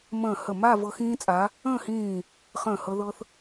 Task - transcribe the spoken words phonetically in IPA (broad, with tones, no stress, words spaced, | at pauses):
mə̃ː˧˩ hə˧˩ma˥˧ vɤ˧xĩː˧t͡sʼa˩˧ | ə̃ː˥˧hĩː˧˩ | χə̃ː˧˩hɤ˧ðɤ˧θ